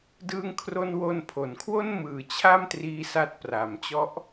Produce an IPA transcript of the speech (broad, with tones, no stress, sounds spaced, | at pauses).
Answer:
d ɯː˧ ŋ kʰ r o˧ n w o˧ n pʰ o˩˦ n kʰ w o˥˩ n m ɯː˨˩ t͡ɕʰ a˥˩ m t r iː˦˥ s a˦˥ t̚ p r a˩˦ m t͡ɕ ɔ˦˥ ʔ